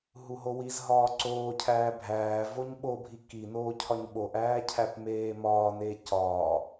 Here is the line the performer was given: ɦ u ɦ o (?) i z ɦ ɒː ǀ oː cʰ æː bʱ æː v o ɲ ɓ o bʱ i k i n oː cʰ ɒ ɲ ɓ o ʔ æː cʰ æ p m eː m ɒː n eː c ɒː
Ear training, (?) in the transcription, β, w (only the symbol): w